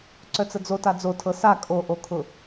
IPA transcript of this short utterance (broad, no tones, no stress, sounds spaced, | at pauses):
ǀ œ t͡s ə d͡z o t a d͡z o tʰ ɤ s a kʼ o ʔ o kʰ ʊ